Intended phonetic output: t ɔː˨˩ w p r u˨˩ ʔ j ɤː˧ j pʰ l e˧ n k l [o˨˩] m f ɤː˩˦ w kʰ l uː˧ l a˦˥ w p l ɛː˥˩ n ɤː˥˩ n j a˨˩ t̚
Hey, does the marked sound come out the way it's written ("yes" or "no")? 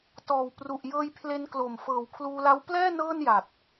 yes